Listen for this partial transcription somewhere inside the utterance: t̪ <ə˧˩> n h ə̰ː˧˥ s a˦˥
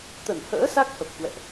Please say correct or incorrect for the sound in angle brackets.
correct